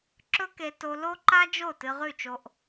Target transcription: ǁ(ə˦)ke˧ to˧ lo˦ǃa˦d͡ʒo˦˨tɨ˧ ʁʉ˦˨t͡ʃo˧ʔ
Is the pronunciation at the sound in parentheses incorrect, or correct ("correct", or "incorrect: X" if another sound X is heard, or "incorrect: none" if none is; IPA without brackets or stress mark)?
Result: incorrect: ɵ˦